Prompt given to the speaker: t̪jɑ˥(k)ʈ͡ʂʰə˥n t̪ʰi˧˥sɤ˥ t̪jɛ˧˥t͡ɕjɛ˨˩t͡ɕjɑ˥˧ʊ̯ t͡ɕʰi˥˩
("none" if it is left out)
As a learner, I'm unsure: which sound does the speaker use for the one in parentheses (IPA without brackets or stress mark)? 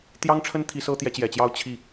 ŋ